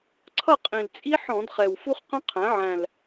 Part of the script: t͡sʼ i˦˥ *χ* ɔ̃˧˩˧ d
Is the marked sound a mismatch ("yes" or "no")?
yes